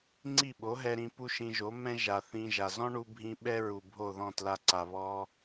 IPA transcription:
ŋ͡ǀi˦˨ɓo˨˦ɦɛ˧ɾĩ˧ pu˦ʃĩ˧ʒo˨˦ mɛ̃˦ʒa˨ θĩ˧ʒa˨ zɔ̃˦ɳu˧bʱĩ˧ ɓɛ˦ɹu˨ bʱo˦˨ðɔ̃˦˨tla˧ǀa˨ βɔ˧

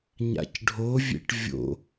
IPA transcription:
ɲa̰cɖʱovʲḛʈ vʲo̰

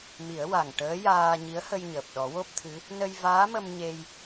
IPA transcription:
mi˨˩˦ə̯wa˨˩ŋ ʈəː˧˥jaː˧ ɲi˧˥ə̯hə˧jɲəː˨˩p̚ ɗɔ˨˩˦wo˦˥p̚t̪ʰɨ˧˥ | nə˧jvaː˧˥mə˧m ɲe˧j

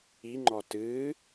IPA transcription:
iŋ͡ǃɔ tɨ

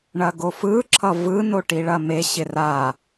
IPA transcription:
ɳɐɡofɯ ǁʰʌvɯ noʈiɭɐme ɕɪra

